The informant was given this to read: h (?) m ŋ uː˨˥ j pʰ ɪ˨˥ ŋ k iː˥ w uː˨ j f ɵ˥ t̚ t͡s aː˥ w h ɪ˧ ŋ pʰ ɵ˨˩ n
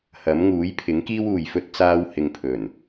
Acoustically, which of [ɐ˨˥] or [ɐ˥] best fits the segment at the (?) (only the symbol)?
ɐ˨˥